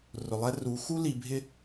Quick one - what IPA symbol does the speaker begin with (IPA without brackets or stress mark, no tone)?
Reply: r